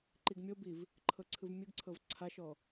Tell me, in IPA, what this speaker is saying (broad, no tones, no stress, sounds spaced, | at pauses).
ǃ i ɡ mʲ o b i v | ǃʰ ɤ ǀʰ ɯ v mʲ ɯ ɡ ǀʰ ɤ v ǀʰ a ʃ ɔ